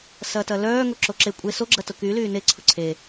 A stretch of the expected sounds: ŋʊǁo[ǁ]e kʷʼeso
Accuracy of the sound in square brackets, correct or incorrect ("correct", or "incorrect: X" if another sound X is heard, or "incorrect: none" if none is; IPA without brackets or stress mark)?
correct